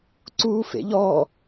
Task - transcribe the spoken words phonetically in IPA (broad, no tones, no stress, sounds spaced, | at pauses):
ǀ uː f ḛ ʎ ɔ